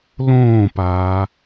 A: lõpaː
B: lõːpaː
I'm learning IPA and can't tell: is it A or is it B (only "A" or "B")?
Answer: B